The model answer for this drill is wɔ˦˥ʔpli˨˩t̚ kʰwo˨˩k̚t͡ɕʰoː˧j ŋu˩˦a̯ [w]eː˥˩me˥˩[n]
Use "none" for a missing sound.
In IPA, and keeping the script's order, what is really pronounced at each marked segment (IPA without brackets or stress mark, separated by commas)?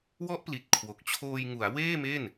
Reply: w, n